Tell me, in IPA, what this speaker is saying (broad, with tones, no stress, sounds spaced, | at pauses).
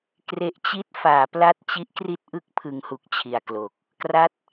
k r e˦˥ ʔ t͡ɕ i˥˩ t̚ f aː˩˦ p l a˥˩ t̚ t͡ɕ i˦˥ ʔ k r i˥˩ t̚ ʔ ɯ˥˩ k̚ pʰ ɯ˧ ŋ h u˦˥ k̚ t͡ɕʰ i˨˩ a̯ k l o˨˩ k̚ | k r a˦˥ t̚